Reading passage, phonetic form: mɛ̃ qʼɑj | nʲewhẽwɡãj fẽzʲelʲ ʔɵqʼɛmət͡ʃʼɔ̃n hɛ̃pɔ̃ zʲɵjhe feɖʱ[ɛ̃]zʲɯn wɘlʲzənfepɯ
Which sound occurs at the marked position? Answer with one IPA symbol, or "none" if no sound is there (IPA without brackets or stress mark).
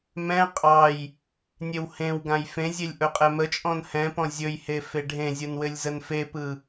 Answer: ẽ